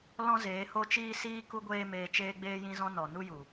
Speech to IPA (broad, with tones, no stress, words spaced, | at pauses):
lɔ̃˦zeː˨˦ ho˦t͡ʃiː˦siː˦ ku˦ɡʷeː˦meː˧ t͡ʃeː˧ɡ͡beː˧jĩ˧zɔ̃˧ nɔ˨nu˦ju˨